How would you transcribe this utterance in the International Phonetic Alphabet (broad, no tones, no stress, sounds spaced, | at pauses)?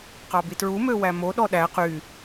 q ɑ b i t ɹ u m ø w æ m o ɗ ɔ ɗ æ q y